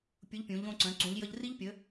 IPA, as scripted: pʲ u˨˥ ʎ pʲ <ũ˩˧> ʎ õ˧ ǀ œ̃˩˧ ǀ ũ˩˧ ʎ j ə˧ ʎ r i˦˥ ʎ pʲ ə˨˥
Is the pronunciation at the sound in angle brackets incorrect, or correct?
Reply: correct